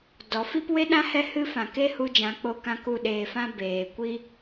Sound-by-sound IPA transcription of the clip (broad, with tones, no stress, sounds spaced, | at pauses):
d ɔ˨˦ f i˦ p w e˦ ɗ ã˦ h ɛ˦ h ɨ˦ f ã˨ k e˦ h u˧ d͡ʒ ã˨˦ k͡p o˧ k ã˧ k u˦˨ ɗ eː˨ f ã˦ b eː˨ kʷ i˦